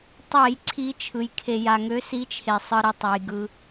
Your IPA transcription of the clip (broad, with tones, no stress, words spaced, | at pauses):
tˤɛ˧˩˧jǀʰi˨˦t͡ʃʰɯ˩j kʰe˩ ja˩ŋø˨˦si˨˦t͡ʃʰe˩ sˤɯ˩ɾi˩ tˤa˩jɡɯ˩